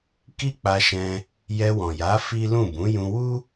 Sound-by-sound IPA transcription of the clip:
ki˦k͡pa˧ʃɛ̃˧ | jɛ˧wɔ̃˨ja˨˦ fi˦lũ˦˨ bũ˨˦jũ˧wu˦

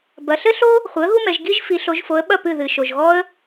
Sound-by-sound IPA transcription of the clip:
bɐ˩˧ɬɘ˥ɬo˥ | χʷɨ˩˥ə̯ɣu˥mɛ˩˧ʒ ɡi˥ʒ fi˩˧ɬo˩˧ʒfo˩˧ə̯ɓɐ˥˩ pɨ˥˩ðɨ˩ ʃo˩ʒɣɔ˥ə̯

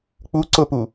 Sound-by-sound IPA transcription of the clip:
k͡pu ǀʊpu

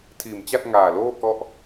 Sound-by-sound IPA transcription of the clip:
tʰiː˨˩mt͡ɕa˥˩t̚ŋaː˨˩loː˥˩ kɔ˥˩ʔ

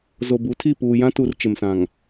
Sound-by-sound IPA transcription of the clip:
zo˨bu˨˦tʰi˦˨ puː˨jã˦tu˨r t͡ʃɪ˨msã˨ŋ

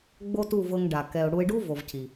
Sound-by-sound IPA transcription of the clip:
ɡ͡bo˦tu˦˨vɤ˧ŋ ɖa˨kɛ˧ʊ̯ ɽu˧ɪ̯ɖu˦vo˨v cʰi˨

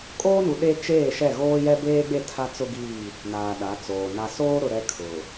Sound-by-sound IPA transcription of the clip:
kʼoː˦nu˨ ɗe˦ t͡ʃeː˦˨ʃɛ˦˨ ɣoː˦jɛ˦beː˦ɡ͡be˦˨ tʰa˦t͡sʊ˦ ɡiː˦˨ | naː˨ɗa˨˦t͡soː˨ na˨soː˦ɾʊ˨ ɾɛ˦kʰʊ˨

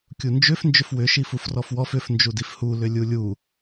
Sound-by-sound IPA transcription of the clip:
kʲund͡ʒʏf nd͡ʒʏfwʏ ʃifufrɔfwɔf ʏf nd͡ʒudifhu lʏlʲulʲu

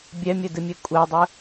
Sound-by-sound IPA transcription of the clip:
bʲɛmʲɘdɨmʲe kʷʼɛdˤɯ

